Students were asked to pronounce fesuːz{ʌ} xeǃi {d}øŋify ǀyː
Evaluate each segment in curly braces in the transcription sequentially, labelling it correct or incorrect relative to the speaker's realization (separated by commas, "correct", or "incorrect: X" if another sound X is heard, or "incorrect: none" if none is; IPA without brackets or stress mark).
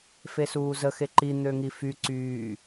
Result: incorrect: ə, incorrect: n̪